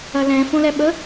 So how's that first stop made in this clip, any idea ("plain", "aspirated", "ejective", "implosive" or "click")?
implosive